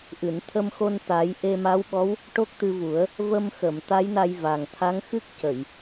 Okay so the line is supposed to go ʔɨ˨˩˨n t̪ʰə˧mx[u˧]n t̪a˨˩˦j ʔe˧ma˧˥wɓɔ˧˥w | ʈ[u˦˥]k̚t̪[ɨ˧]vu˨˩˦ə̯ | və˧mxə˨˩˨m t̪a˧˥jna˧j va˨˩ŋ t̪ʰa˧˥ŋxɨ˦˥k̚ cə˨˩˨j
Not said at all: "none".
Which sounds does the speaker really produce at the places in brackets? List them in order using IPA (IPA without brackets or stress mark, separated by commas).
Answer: o˧, o˦˥, ɨ˧